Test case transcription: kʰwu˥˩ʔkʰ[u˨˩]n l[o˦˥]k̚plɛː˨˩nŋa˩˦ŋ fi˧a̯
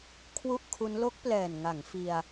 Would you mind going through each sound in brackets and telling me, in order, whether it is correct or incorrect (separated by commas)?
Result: incorrect, correct